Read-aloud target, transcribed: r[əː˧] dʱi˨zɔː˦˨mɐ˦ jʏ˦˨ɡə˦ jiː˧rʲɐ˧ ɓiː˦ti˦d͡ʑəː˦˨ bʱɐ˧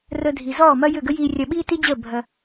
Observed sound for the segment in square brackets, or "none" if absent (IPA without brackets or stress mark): ə˧